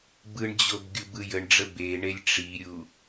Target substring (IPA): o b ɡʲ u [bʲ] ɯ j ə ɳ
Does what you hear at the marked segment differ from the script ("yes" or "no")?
yes